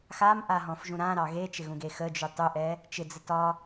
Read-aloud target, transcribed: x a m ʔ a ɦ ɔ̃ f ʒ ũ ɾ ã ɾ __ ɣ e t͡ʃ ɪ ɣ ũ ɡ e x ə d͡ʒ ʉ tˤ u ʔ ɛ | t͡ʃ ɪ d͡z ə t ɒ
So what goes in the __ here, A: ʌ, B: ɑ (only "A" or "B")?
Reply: B